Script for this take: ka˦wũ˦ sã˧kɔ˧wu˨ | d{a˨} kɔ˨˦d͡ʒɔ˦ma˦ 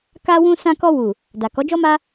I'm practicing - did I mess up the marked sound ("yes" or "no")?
no